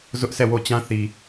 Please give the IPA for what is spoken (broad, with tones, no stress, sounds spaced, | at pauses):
z ʊ˦ ʔ s ɛ˦˨ w o˦˨ t͡ɕ ã˦ θ i˨